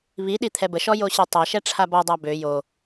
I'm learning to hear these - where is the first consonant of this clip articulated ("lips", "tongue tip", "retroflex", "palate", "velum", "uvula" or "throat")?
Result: lips